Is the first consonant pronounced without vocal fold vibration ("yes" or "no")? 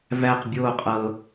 no